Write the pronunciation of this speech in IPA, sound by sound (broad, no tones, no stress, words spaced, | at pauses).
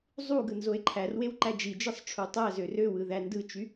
zˤu ɡɯnzoe̯ǃʰærwew ǃæd͡ʒid͡ʒɯsˤ ʈ͡ʂʰutˤæzø røwɯ ðændɯt͡ʃy